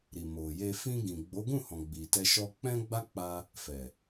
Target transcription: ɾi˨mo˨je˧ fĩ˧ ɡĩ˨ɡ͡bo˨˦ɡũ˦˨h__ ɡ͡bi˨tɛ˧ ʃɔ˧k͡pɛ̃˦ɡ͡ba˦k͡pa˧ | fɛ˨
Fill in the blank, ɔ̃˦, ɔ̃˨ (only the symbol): ɔ̃˨